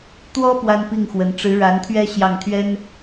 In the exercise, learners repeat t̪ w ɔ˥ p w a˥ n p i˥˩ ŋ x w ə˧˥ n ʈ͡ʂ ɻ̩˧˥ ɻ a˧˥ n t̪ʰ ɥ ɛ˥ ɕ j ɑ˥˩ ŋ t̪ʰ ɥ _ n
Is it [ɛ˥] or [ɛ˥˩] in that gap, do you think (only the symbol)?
ɛ˥